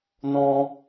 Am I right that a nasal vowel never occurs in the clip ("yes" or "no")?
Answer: no